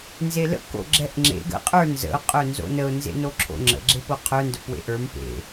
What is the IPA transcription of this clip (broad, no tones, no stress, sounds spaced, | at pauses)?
n z e l ə̰ k o̰ ɡ͡ǁ ɛ ʔ ŋ͡ǁ ḛ ɡ ə̰ qʼ ə˞ n z ə̰ ʊ̯ qʼ œ n z o̰ n ə ʊ̯ n z ḛ n o ǁʰ o̰ ŋ͡ǁ ə̰ ɡ͡ǁ e p o qʰ œ n d œ p w ḛ ʔ ə˞ m p ḛ